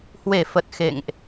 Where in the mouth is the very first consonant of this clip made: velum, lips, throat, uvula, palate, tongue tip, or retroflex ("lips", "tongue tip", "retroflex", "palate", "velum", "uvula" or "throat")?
throat